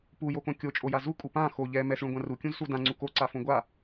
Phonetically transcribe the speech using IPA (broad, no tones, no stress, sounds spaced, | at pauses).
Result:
p u j o k õ kʲ o t͡ʃʼ o j a z u kʼ u p ã x o ʎ ɛ m ɛ s ɭ ũ ɡʷ ã r u kʲ ũ z s u d ã ŋ͡ǀ u k o ǀ a f õ ɡʷ a